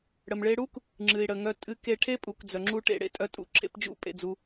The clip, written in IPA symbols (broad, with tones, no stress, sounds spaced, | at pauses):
ɽ ə˩ m ɭ e˧ ɽ u˥ k | ŋ͡ǁ ɨ˩ i̯ ɽ ə˩ ŋ œ˧ tʼ ɨ˧ k e˧ ʈʰ e˥ pʼ u˩ k d͡z œ˩ ŋ͡ǁ u˧ ʈ ḛ˧ ɽ ḛ˧ tʼ œ˧ tʼ ṵ˧ ǁʰ ḛ˧ p d͡ʒ ṵ˧ pʼ ḛ˩ d͡z u˩